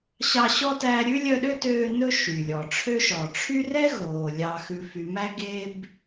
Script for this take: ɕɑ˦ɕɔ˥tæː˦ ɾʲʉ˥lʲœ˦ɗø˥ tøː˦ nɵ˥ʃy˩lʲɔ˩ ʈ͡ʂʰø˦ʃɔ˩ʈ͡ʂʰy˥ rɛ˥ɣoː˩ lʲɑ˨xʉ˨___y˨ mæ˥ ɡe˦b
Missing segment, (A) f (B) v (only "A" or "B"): A